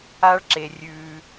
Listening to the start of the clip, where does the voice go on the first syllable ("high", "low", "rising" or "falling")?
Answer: high